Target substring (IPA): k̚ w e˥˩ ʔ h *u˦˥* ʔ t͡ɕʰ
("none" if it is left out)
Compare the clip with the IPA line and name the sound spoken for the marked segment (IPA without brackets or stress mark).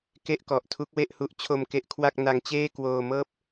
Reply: u˦˥